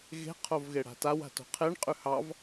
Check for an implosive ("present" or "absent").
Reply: absent